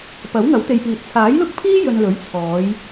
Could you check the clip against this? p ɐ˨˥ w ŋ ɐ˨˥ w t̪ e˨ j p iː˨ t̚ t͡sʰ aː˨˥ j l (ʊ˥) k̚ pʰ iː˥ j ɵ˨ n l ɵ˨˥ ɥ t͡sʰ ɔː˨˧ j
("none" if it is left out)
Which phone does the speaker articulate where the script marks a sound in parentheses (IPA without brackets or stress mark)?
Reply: ʊ˥